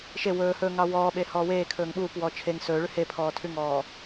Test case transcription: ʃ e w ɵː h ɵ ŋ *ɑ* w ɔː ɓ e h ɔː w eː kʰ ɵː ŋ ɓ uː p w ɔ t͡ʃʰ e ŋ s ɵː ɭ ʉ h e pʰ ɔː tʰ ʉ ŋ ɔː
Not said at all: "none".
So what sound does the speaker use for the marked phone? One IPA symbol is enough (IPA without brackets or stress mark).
ɑ